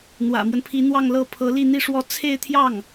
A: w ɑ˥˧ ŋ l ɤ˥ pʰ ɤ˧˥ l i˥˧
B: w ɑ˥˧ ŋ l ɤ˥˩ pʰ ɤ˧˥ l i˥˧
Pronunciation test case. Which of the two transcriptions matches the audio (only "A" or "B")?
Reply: B